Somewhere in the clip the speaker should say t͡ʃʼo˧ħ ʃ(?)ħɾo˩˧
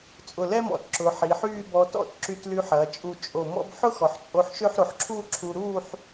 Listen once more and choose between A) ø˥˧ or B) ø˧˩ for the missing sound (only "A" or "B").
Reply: A